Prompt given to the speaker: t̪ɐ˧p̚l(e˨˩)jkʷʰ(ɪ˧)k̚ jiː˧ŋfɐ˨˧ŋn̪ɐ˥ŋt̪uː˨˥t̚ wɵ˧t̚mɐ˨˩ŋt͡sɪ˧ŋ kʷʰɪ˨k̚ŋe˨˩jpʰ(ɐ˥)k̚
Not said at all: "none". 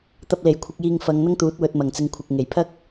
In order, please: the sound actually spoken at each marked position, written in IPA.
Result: e˨˩, ɪ˧, ɐ˥

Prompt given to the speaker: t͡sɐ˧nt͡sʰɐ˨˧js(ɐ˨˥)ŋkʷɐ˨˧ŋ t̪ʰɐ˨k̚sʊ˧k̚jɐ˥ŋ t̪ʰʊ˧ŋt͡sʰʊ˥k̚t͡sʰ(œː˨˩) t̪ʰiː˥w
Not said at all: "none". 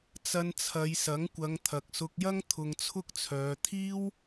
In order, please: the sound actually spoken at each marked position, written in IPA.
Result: ɐ˨˥, œː˨˧

